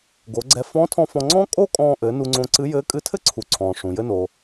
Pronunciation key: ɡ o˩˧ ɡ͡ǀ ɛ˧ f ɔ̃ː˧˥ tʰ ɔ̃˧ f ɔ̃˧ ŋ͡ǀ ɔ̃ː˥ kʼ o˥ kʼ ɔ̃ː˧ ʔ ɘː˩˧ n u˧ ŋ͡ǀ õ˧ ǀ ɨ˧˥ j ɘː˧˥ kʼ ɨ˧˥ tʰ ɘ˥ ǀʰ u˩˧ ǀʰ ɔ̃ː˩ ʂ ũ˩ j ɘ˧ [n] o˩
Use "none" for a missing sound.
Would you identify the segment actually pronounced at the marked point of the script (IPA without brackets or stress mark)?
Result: n